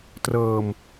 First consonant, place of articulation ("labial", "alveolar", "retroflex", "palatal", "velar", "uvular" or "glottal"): alveolar